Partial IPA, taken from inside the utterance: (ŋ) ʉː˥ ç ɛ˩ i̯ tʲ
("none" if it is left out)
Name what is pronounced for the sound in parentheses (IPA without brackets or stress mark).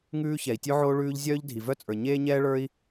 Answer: ŋ